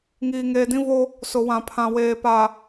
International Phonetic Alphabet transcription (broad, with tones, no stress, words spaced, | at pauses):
ŋiː˨ŋeː˨dĩ˦vo˦ | sʊ˨wã˨pʰã˨ weː˨pa˨